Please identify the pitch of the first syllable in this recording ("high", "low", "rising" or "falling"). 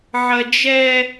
high